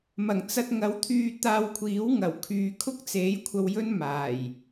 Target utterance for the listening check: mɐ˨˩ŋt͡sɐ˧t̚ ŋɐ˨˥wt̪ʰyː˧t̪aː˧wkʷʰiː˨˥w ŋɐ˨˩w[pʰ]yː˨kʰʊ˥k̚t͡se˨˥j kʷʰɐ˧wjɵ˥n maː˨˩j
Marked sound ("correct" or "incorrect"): incorrect